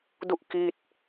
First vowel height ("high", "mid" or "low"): high